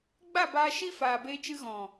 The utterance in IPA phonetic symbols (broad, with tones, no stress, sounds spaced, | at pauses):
ɡ͡b a˦˨ b aː˧ ʃ i˦ f aː˨ b eː˧ t͡ʃ ɨ˧ ɣ ɔ̃˨